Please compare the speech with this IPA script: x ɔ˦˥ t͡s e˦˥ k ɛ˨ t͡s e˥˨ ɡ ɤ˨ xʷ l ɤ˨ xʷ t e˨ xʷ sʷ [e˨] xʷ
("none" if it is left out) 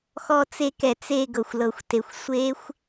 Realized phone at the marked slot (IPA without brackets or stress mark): e˦˥